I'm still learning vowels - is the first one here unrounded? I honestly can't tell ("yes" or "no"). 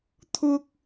no